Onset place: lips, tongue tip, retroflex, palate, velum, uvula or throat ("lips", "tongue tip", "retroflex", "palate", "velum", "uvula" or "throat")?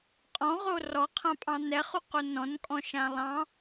uvula